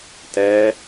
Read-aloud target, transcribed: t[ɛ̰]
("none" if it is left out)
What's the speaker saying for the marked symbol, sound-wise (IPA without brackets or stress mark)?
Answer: ɛ